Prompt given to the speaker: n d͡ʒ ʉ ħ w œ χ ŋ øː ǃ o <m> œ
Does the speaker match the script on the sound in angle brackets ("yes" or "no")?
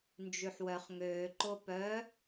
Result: no